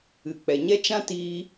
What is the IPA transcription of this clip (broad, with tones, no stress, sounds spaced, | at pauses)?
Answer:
ɨ˨ k͡p ɛ˨ ɲ ɛ˦ t͡ʃ ã˦ t iː˧